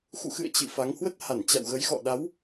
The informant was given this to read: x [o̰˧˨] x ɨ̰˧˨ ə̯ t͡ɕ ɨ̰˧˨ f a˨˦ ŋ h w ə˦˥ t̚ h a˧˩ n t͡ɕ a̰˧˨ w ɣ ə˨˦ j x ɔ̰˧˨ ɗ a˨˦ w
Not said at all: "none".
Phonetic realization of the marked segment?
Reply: ṵ˧˨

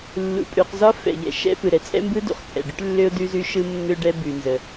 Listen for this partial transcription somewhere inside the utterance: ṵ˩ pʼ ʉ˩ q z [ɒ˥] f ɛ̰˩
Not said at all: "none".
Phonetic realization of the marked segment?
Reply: ɒ˥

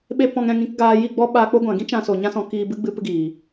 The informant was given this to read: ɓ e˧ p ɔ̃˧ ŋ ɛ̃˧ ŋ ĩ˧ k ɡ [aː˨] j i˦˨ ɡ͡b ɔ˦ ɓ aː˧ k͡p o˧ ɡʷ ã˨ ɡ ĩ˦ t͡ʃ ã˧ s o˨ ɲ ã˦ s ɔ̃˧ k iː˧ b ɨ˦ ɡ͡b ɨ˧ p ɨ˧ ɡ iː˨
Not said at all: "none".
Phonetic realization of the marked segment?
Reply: aː˧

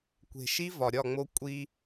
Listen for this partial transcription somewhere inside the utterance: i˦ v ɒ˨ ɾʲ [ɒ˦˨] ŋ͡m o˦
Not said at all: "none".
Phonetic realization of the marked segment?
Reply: ɒ˦˨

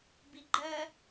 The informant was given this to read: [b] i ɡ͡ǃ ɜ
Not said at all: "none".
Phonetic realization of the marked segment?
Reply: b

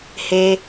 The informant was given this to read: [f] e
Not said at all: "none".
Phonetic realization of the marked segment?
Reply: h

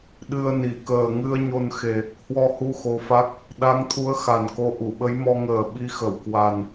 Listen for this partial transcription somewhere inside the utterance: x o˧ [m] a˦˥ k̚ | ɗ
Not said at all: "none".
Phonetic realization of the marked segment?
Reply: f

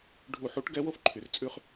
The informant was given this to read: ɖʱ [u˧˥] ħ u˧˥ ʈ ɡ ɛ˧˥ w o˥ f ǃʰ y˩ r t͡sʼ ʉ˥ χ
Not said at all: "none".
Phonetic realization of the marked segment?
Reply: u˧˩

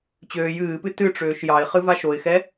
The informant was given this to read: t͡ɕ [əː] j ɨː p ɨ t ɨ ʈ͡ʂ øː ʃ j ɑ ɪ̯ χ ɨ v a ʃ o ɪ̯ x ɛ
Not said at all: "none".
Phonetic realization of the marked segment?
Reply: øː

